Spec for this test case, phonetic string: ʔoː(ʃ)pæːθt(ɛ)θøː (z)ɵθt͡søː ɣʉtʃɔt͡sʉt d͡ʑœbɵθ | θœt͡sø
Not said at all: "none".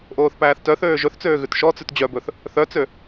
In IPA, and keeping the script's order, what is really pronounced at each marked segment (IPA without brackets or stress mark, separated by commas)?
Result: θ, œ, ʒ